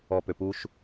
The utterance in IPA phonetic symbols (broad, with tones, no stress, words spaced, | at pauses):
ɔ˨pø˨pu˦ʃ